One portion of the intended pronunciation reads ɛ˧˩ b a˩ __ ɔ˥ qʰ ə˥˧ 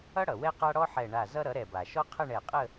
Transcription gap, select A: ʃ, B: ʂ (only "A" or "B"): A